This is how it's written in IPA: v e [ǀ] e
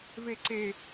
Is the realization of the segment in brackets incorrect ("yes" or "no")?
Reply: no